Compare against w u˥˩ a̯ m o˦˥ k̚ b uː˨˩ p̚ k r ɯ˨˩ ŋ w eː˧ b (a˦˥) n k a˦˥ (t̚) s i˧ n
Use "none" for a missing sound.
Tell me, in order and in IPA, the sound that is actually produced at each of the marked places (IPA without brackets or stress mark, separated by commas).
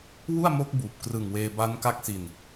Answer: a˦˥, k̚